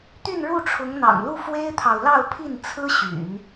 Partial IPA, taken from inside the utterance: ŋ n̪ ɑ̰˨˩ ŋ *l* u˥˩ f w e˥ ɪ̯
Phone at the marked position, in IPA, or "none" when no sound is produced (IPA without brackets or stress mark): l